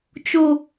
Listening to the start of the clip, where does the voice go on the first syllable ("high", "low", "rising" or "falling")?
high